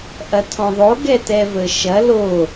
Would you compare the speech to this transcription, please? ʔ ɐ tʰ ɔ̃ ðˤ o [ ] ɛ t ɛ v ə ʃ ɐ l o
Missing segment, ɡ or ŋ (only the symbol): ɡ